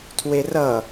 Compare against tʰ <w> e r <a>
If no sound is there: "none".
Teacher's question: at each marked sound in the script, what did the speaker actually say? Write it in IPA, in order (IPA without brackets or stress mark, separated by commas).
w, ʌ